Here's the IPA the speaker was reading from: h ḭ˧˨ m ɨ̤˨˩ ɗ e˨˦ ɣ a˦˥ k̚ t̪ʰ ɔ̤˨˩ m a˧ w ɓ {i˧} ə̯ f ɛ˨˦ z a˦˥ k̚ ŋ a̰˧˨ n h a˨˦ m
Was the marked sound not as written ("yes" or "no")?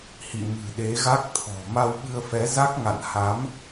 yes